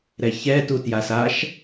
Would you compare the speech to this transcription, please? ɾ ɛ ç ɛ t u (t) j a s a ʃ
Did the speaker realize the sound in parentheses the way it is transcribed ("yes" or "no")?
yes